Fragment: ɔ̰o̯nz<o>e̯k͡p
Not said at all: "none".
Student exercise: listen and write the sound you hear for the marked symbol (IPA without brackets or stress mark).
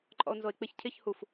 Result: o